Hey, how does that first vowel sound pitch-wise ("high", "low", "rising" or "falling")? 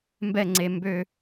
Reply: falling